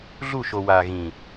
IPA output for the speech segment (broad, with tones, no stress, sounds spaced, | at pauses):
ɮ u˦˨ ʃ o˨ w a˨ ɣ ĩ˨